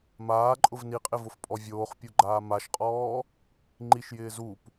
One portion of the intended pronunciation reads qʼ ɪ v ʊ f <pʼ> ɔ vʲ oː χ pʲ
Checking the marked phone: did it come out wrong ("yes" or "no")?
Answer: no